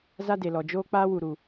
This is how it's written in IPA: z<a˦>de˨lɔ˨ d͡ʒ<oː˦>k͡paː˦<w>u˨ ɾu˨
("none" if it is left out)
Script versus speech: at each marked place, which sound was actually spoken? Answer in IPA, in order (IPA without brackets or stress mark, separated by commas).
a˦, oː˦, w